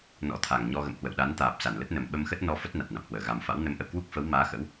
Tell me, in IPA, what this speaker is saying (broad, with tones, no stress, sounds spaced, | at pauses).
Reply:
n ɔ̰˧˥ t̪ʰ a˨˩ ŋ ɲ ɔ˧ ɣ ə̰˧˨ m h w ə̰˧˨ w ɗ a˨˦ n t̪ aː˨˩ p̚ s a˧˩ n l ə˦˥ t̚ n ə˨˩ m ɓ ə˧ m x ə˦˥ t̚ n ɔ˧ f ə˦˥ t̚ n a˨˩ t̚ n a̰˧˨ m h w əː˧˩ ɣ a˨˩ m f a̰˧˥ w n ə˨˦ m ʔ ə̰˧˨ w k w u˦˥ k̚ f ə˨˦ w m aː˨˦ x ə̰˧˥ w